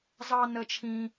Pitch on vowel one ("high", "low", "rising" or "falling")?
high